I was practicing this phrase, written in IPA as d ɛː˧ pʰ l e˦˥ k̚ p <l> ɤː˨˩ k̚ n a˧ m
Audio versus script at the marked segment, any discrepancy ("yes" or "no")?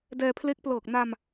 no